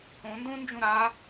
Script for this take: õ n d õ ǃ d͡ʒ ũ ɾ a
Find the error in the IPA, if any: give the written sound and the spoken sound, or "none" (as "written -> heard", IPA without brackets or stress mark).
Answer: ǃ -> n